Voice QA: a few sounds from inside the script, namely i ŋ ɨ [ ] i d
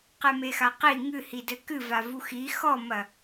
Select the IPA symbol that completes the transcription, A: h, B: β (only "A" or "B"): A